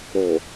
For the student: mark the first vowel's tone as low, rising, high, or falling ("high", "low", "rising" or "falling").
low